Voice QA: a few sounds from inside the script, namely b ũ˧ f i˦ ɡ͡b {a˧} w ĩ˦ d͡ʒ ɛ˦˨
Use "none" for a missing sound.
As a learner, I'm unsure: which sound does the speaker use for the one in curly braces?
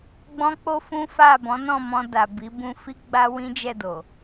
a˦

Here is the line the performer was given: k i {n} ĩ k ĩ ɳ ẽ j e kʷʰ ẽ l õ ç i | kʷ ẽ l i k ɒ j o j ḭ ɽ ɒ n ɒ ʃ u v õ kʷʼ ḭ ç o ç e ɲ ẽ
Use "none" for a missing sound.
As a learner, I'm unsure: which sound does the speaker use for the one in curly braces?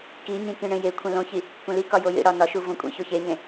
ɲ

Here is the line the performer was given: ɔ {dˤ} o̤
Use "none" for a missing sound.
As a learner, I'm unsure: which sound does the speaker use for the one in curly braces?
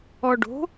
ɖ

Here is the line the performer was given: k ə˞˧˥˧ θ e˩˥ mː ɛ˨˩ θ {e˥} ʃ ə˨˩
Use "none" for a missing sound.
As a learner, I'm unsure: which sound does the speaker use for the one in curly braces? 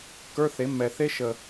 e˥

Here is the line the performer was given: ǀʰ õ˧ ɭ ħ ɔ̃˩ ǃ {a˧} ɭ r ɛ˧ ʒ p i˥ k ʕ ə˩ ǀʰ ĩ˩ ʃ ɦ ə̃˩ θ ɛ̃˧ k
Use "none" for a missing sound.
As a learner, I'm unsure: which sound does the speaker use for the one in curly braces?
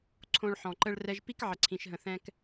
ə˧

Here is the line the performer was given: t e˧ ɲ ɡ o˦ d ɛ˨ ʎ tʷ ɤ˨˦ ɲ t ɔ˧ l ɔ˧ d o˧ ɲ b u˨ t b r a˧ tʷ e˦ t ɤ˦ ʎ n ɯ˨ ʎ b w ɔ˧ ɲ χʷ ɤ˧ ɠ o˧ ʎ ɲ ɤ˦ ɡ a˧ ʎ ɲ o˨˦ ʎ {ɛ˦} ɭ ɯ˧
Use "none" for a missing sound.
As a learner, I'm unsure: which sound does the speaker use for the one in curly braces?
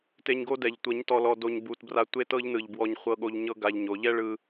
ɛ˦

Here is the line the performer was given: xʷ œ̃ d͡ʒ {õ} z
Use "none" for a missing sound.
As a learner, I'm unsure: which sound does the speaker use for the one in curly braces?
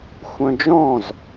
ɔ̃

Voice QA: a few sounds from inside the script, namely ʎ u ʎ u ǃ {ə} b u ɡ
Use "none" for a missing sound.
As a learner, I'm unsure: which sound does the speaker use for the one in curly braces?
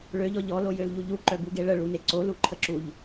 œ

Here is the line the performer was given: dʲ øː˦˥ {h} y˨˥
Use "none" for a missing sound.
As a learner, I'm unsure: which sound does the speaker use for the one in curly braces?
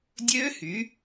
h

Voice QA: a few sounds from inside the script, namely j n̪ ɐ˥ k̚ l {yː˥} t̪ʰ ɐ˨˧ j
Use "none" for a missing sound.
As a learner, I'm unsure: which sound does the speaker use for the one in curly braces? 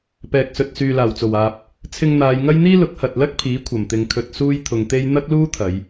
uː˥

